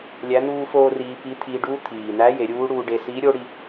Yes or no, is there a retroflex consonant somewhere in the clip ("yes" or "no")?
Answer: yes